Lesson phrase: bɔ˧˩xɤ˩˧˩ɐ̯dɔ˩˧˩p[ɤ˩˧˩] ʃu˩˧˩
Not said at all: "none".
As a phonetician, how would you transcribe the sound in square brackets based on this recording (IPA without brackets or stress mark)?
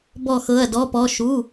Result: ɔ˩˧˩